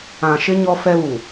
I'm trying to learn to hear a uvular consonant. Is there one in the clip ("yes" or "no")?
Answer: no